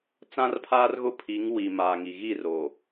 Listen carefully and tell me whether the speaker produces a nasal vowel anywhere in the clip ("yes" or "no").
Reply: yes